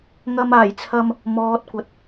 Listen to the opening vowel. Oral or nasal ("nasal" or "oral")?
oral